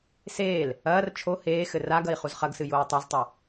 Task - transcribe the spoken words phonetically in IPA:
s eː l | ɐː r t͡ʃʰ o h eː x ɘ r a ɡ ɐ i̯ χ u z χ ɐ ɡ s ɨ j oː tˤ a z tˤ ɐ

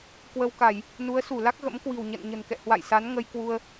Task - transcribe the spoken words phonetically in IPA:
k w ə˧ w k a˧˩˨ j | n u˨˦ ə̯ s u˧˩ l a˦˥ k̚ ɣ ə̰˧˥ m k w i̤˨˩ w ɲ ə̰˧˨ n ɲ ə̤˨˩ n k ɛ̰˧˨ h w a̰˧˨ j s a˨˦ n ŋ ə˧ j k w u˧ ə̯

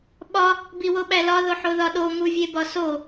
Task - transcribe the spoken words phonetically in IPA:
ɓ ɒ | b i w o ɓ æ l ɒ ð o ħ o ð ɒ ɗ o ŋ u vʲ e b ɒ s o

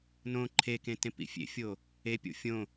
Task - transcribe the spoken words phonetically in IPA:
n õ ǃʰ e k ẽ t ẽ p ḭ fʲ ḛ fʲ o | e pʲ o̰ fʲ õ

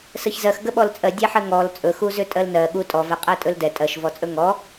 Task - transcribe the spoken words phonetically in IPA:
s ə ç z ɜ x ɡ ə ɓ ɔ l t͡sʼ ɜ dʲ ɛ ħ ə ŋ ɔ l t͡sʼ ɵ x u z ʏ tʼ ɜ l n ɜ ɠ u tʼ ɔ v ɛ qʼ ɛ tʼ ɵ l d ɛ tʼ ɜ ʃ v ɔ t͡sʼ ɵ ŋ ɔ

